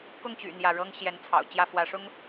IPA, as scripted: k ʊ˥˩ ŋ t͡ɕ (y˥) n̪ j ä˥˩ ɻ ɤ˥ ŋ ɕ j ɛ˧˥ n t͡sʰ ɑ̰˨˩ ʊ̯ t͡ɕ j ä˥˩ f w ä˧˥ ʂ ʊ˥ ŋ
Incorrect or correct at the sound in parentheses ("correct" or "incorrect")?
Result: incorrect